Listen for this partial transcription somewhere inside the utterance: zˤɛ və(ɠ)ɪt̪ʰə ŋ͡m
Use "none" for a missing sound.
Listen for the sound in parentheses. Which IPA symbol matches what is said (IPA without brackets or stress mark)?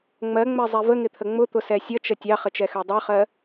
ŋ